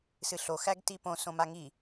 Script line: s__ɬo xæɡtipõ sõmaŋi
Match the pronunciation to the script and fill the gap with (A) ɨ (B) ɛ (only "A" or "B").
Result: A